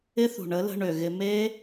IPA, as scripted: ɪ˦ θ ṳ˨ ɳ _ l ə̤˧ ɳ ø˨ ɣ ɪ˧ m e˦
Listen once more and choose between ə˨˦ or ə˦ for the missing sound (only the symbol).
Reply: ə˨˦